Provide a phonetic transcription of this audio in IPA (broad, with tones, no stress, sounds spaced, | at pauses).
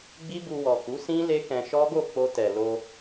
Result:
ɡ͡b i˦ b u˧ w ɔ˨ k u˨˦ s ĩ˦ l e˦ k ɛ̃˧ ʃ ɔ˦ ɡ o˦˨ k͡p o˧ t ɛ˨ l o˧